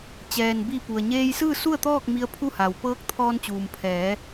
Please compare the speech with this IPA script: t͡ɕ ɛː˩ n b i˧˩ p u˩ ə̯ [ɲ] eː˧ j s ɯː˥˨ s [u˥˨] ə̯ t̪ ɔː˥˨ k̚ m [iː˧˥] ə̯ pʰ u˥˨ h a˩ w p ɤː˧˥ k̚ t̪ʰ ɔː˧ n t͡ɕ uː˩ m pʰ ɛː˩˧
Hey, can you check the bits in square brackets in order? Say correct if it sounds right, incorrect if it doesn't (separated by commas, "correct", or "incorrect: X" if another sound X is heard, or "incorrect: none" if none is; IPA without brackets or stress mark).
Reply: correct, correct, incorrect: i˧˥